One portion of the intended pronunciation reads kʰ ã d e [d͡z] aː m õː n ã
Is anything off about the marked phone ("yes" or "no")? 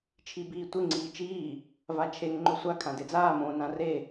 no